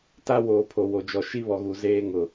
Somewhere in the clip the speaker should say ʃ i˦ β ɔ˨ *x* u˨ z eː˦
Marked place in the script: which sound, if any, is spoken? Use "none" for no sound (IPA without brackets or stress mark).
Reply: ɣ